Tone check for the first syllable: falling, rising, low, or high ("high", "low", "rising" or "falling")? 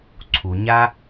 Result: low